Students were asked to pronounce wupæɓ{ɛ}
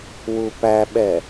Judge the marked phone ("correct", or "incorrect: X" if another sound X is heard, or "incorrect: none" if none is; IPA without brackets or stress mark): correct